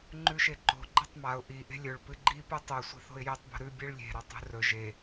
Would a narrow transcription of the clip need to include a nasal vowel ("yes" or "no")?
no